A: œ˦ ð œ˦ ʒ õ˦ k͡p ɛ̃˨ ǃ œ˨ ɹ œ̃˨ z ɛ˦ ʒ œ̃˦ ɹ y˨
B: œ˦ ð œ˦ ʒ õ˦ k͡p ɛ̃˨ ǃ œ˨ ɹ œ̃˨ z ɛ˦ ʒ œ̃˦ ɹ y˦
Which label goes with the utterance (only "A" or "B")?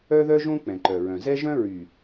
A